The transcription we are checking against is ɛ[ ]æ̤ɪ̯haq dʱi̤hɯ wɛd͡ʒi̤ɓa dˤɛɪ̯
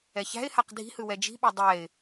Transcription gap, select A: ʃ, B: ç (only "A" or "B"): B